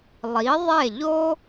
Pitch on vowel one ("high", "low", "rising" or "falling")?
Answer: rising